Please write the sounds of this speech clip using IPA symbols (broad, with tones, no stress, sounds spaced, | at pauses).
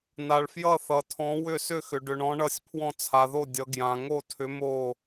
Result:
n a˧ ɭ f j ʌ˥˧ θ ʌ˧ tʰ ɔ̃˧˥ w ʏ˥˧ s ʏ˥˧ x ʏ˧ ɖ ʏ˧ ɳ ɔ̃˧˥ ɳ ʌ˥˧ sʲ pʰ w ɔ̃˥˧ t͡sʰ a˧ ð o˥˧ dʲ ʌ˧˥ ɡ j ã˧ ŋ o˥˧ tʰ ʏ˧˥ m o˥˧